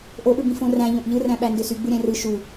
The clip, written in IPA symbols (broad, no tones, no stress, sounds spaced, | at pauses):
ʔ o ʔ ɯ b ĩ f õ r æ̃ ʎ õ ʔ ʎ ɯ r æ̃ ɓ æ n d ø s y ɡ͡b ɯ ɾʲ æ̃ r ɯ ʃ u